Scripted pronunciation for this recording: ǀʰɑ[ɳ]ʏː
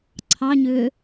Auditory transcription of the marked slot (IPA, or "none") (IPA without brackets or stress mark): ɲ